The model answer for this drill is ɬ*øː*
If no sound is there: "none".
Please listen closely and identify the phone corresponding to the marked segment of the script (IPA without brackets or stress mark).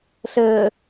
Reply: əː